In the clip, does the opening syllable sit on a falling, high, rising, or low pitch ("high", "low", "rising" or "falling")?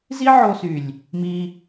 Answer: high